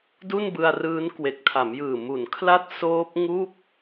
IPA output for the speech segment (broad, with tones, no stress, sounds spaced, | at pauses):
d u˥˩ n b ɯ˧ a̯ r ɯː˦˥ n k w e˨˩ k̚ tʰ a˩˦ m j ɯː˨˩ m u˩˦ n kʰ l a˦˥ t̚ s oː˦˥ p̚ ŋ u˥˩ k̚